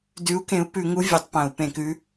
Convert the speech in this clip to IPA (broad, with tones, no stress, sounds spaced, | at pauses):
d ʉ˨˥ u̯ k ẽ˨˥ u̯ p ʉ˧˩˧ ŋ u˨˥ vʲ e˧˩˧ tˤ p ɐ̃˧˩˧ u̯ p ẽ˧˩˧ k ʉ˨˥